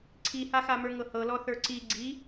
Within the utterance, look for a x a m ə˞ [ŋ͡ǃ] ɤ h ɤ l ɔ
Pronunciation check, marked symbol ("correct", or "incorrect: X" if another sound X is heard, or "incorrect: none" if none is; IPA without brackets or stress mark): incorrect: ŋ